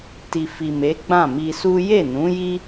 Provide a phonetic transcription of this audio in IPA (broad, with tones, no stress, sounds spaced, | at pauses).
t i˨ f i˨ m e˨˦ ɡ͡b ã˦˨ m i˧ s u˦ j e˦˨ n ũ˨˦ j i˦